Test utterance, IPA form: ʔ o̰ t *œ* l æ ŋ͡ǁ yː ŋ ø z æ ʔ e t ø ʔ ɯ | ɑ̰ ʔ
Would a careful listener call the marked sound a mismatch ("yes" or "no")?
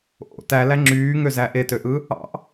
yes